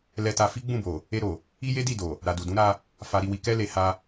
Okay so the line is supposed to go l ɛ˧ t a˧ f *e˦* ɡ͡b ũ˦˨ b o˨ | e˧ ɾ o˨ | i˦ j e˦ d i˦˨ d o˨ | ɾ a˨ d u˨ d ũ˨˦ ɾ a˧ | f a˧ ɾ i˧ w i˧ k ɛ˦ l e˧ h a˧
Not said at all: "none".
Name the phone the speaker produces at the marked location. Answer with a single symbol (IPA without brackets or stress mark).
i˦